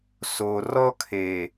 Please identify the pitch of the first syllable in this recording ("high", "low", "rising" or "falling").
low